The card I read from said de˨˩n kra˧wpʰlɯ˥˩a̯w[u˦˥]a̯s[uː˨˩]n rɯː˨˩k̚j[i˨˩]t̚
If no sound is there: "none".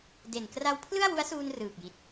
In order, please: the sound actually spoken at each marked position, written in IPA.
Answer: u˦˥, uː˧, i˨˩

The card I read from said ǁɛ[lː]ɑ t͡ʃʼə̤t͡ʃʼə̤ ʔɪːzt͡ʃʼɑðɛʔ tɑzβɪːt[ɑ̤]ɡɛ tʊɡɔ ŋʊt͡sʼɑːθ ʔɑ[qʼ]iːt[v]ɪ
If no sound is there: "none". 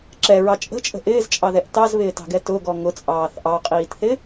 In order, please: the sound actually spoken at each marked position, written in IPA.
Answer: ɹ, ɑ̤, qʼ, θ

